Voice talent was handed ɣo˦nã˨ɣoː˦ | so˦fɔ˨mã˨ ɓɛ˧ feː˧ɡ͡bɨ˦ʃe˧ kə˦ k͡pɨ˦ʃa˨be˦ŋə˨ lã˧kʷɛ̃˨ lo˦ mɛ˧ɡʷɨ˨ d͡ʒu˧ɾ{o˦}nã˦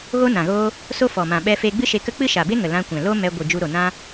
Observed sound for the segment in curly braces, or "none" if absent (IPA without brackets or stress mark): o˨